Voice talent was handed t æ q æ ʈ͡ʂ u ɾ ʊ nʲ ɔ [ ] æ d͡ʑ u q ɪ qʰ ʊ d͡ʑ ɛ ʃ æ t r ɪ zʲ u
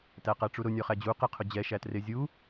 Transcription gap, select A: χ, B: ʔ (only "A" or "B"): A